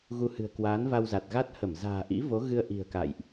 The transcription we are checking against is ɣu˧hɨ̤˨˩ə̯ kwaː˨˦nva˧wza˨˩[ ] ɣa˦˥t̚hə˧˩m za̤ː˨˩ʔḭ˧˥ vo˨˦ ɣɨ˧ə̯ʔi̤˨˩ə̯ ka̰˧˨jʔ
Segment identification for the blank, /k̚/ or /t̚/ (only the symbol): t̚